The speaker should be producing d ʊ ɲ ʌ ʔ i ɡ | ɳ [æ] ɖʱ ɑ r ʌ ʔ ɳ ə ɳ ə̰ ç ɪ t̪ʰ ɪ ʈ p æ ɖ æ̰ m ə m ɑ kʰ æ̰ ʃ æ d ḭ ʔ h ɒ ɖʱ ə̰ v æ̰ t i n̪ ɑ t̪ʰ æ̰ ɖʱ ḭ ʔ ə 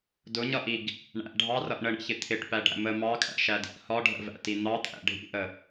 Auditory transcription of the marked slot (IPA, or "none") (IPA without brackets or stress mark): æ̰